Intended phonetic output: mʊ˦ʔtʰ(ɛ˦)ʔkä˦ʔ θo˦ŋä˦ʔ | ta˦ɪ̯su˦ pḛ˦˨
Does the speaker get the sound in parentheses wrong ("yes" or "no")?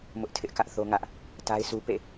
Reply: yes